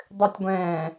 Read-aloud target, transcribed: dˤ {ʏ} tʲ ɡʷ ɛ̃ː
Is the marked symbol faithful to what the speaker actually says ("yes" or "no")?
yes